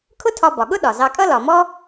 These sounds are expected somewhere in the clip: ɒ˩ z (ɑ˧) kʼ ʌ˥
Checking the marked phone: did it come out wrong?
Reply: no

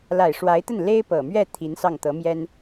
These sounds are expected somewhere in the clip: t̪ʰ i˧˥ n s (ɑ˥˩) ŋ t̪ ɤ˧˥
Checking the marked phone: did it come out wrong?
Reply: no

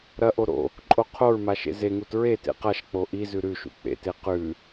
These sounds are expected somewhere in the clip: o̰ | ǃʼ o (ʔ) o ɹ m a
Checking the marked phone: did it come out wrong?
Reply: yes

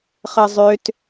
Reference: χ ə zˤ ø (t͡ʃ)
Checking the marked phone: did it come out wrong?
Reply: yes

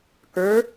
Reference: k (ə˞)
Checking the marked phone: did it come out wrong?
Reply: no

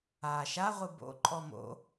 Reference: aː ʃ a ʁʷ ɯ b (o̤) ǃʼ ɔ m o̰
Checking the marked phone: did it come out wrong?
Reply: yes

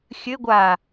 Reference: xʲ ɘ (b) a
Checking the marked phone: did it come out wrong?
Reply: yes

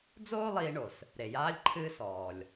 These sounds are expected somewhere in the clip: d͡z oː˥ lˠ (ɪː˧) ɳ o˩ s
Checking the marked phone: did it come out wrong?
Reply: yes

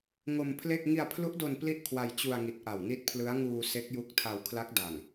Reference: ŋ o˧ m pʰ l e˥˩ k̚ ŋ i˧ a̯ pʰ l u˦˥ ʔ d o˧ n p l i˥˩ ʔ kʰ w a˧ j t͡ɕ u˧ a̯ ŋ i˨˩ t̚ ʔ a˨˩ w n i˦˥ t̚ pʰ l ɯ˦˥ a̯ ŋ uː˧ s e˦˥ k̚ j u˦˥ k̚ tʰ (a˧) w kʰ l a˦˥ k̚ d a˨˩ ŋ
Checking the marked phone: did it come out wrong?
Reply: no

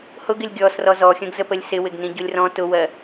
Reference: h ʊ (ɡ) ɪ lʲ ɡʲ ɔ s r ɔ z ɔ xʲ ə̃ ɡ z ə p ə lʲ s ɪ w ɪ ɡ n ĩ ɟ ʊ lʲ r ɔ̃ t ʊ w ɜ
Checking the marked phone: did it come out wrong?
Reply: no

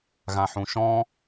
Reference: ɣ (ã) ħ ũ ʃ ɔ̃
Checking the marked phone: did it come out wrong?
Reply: no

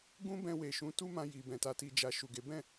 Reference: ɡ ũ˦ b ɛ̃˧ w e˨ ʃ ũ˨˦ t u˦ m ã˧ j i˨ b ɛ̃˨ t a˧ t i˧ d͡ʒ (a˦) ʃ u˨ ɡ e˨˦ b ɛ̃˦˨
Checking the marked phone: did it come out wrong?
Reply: yes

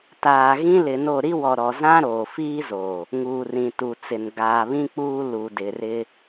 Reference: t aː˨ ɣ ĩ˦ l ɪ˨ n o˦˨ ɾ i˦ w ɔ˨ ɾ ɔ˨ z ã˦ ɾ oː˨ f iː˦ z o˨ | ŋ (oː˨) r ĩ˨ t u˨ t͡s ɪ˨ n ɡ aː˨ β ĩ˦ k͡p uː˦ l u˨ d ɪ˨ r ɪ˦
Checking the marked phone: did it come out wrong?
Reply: yes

